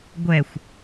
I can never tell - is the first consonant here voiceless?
no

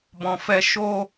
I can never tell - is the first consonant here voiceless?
no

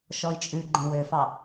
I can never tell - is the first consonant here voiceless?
yes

